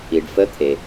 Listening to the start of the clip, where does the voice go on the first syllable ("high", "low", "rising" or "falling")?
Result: low